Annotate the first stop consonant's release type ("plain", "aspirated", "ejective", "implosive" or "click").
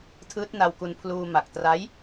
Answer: aspirated